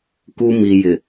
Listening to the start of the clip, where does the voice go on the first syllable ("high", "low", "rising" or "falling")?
high